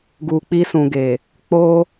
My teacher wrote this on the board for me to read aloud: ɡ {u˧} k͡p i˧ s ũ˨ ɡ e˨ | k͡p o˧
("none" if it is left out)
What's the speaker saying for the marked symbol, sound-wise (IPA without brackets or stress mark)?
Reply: u˨